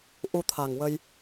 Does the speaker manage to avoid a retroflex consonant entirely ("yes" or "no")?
yes